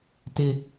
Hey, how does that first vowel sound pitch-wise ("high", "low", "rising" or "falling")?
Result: high